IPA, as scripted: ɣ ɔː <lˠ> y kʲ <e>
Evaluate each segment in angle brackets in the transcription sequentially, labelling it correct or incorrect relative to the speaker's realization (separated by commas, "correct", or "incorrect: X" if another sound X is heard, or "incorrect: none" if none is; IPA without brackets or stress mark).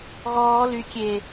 incorrect: l, correct